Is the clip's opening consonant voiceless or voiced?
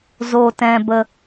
voiced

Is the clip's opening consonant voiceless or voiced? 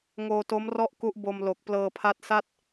voiced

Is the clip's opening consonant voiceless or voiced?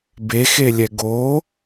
voiced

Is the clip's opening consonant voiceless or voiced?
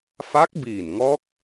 voiceless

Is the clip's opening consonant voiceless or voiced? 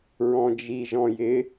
voiced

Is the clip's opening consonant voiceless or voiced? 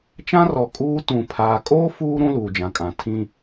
voiceless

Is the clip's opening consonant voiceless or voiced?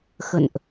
voiceless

